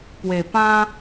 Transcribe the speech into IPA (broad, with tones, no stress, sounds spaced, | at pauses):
p w e˨˩ p ã˦